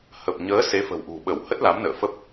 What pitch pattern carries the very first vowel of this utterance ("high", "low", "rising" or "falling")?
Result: low